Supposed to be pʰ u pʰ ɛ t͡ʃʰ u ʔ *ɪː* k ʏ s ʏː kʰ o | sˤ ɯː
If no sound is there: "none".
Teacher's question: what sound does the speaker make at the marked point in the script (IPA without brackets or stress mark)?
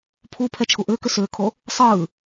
ʏː